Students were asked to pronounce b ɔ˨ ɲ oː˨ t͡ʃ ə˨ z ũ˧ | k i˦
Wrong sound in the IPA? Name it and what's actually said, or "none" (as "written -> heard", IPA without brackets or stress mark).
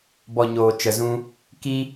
none